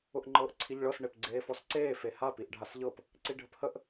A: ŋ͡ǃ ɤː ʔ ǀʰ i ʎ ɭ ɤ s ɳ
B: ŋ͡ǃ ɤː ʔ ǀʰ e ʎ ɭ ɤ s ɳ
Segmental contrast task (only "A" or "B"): A